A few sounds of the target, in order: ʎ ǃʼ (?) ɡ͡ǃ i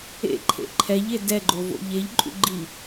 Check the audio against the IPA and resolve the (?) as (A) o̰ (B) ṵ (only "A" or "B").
B